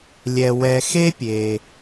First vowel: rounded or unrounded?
unrounded